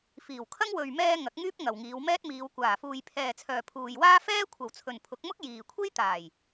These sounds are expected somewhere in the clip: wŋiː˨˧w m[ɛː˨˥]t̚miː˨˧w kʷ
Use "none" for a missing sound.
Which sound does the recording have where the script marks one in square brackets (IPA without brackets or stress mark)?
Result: ɛː˥